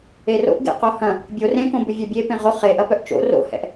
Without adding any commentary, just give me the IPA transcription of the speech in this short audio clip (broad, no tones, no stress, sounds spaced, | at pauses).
e r o̰ ʔ ɡ ḛ q o h ɐ̃ | bʲ o r ẽ k õ b ʏ vʲ œ bʲ e p ẽ ʁ o χ e ʔ ɐ p œ ʔ t͡ʃ o̰ r o̰ h ɛ̰ ʔ